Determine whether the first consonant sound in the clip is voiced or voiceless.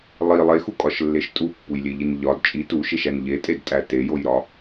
voiced